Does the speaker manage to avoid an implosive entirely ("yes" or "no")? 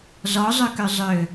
yes